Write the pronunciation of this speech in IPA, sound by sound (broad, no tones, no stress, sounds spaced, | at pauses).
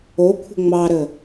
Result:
o kʷʰ ə̤ ŋ͡m ɑ ɾ ə